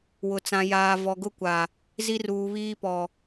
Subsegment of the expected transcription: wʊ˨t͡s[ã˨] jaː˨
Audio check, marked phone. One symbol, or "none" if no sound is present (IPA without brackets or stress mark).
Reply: ã˨